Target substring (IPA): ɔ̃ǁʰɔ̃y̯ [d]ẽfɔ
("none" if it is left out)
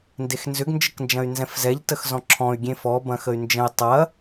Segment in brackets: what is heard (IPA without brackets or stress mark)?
ɡʲ